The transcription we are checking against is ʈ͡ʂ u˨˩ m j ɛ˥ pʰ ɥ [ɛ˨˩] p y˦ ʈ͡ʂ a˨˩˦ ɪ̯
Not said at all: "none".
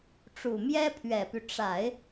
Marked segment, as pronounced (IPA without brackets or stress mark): ɛ˨˩